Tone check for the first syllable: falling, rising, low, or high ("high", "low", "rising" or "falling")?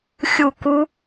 falling